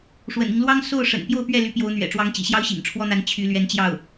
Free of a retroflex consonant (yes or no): no